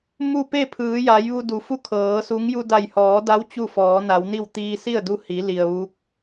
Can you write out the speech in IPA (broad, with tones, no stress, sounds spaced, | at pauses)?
m u˥˨ p e˥˨ pʰ ɯː˩˧ j a˩˧ j ʋ u˧ d u˩ f u˥˨ kʰ ɤː˩˧ s u˧˥ ŋ j u˧ d a˧˩ j h ɔː˩˧ d a˧˥ w t͡ɕ u˥˨ f ɔː˩˧ n a˩˧ w n i˥˨ w t̪ iː˧ s i˥˨ ə̯ d u˧ h i˩˧ l i˩ ə̯ ʋ u˧˥ k̚